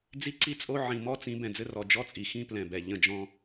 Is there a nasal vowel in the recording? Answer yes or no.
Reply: yes